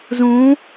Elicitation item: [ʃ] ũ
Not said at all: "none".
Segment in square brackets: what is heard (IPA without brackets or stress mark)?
z